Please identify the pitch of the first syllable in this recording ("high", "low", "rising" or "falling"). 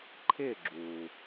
falling